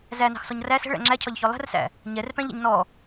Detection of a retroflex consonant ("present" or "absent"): present